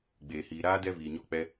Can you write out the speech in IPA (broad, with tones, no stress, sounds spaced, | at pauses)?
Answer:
ɡ͡b eː˨ h iː˨ ɾ aː˦ d ɛ˦ v iː˨ ɲ ɔ˦˨ k͡p ɛ˧